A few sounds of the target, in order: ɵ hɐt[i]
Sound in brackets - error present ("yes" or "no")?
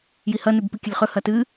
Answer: yes